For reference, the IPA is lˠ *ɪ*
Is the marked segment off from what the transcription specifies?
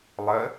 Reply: yes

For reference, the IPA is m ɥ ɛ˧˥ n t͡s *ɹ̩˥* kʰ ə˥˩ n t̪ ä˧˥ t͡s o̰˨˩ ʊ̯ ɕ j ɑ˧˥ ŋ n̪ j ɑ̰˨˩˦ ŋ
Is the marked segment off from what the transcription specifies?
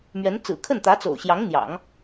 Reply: yes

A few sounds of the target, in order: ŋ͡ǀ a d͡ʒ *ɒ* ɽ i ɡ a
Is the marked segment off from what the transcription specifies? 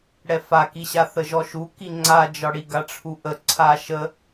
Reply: no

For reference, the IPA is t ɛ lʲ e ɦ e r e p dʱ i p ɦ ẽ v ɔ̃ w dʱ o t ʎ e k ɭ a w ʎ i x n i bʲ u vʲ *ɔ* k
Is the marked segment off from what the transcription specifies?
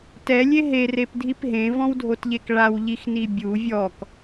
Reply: no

